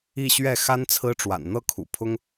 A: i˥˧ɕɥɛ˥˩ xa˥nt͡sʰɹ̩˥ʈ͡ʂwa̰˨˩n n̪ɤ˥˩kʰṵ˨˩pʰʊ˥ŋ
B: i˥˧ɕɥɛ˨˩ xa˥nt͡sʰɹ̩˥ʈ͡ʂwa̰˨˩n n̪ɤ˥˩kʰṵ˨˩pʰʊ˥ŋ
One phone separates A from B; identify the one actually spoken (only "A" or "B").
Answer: A